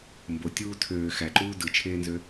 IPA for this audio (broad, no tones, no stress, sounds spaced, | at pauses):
m b o tʲ uː tʰ øː x æ ǃ uː d ɯ t͡ʃʰ eː n z ø